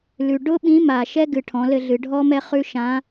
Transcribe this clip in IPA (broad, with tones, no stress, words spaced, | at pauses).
lʉ˩ ɖʊ˥ ɓĩ˧˥ma˩ ʃɛ˥ ɡɨ˩ʈʰɔ̃˩˧lɘ˧ɮɨ˩˧ ɖʱɔ˥mɛ˥χʉ˥ ʃã˧˥